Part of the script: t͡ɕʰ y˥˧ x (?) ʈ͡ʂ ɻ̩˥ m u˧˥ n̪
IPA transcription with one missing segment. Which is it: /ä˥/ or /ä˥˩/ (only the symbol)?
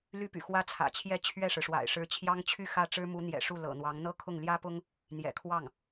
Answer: ä˥˩